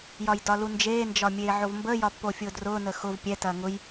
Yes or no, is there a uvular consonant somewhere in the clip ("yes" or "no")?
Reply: no